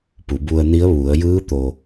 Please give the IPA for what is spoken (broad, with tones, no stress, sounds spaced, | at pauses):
p u˩˧ b u˧ ə̯ n i˧˥ ə̯ ʋ u˩˧ ə̯ j ɯː˧˥ t̪ o˩